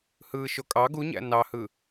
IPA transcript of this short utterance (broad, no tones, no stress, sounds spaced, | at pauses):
h ɯː ʃ o kʼ ɑ ɡ u ɲ æ̰ n ɑ h ɯ